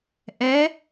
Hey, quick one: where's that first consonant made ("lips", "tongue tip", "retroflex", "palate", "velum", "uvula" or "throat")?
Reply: throat